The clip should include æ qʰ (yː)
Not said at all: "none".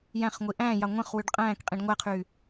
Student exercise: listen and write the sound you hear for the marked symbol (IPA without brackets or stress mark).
yː